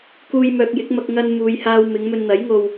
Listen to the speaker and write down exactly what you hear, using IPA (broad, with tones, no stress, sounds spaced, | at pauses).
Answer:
k uː˧ j m œː˨ k̚ j ɪ˨˥ k̚ m ɐ˧ k̚ ŋ ɐ˧ n m uː˨ j h aː˧ w m ɪ˨˧ ŋ m ɵ˧ n n̪ ɐ˨˥ j ŋ o˧ w